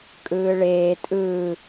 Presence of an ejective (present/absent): present